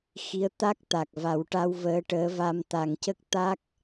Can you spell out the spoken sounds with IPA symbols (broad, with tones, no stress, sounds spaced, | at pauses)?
x i˧˥ ə̯ t̪ a˦˥ k̚ t̪ a˨˩ k̚ v a˨˩˦ w ʈ a˧ w v əː˧˥ ʈ əː˧˥ v a˧ m t̪ a˨˩ ŋ c ə˦˥ k̚ t̪ a˦˥ k̚